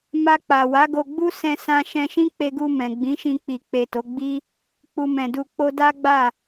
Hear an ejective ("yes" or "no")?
no